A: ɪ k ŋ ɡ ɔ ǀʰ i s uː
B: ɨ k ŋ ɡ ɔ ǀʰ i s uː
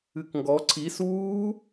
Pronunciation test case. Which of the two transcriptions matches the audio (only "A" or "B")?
B